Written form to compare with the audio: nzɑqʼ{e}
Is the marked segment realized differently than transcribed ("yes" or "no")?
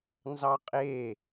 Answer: no